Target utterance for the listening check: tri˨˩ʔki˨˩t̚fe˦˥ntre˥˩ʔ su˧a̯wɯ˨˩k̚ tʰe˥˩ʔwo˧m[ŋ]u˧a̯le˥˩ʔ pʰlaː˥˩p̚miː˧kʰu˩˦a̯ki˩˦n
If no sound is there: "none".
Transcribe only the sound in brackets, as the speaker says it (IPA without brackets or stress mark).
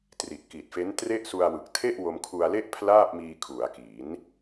kʰ